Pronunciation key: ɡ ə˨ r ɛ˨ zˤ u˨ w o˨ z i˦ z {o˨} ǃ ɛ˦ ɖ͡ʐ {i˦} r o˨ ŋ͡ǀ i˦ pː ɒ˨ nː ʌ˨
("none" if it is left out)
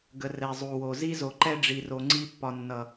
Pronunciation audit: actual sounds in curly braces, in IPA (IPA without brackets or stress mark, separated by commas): o˨, i˨